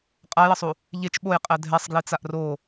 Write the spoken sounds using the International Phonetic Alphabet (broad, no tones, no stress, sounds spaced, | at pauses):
qʼ a j ʌ sˤ u | ʎ e t͡ʃ ɓ o j qʼ ɛ dʱ ɛ sˤ ɡ l i t͡s a ʔ r o